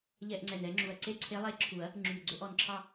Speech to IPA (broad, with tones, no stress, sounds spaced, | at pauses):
ʎ ɛ˥˧ ʔ ŋ͡ǀ ɛ˧˩ n ɛ˧˥ ŋ͡ǁ u˧˩ ɐ̯ ǀ e˥˧ ǀʰ e˧˥ lˠ e˧˥ ǁʰ u˨˩˦ ɐ̯ | ŋ͡ǁ y˧˩ ɡ͡ǀ ɵ˥˧ ʔ ɔ˧˩ n ǁʰ ɑ˥˧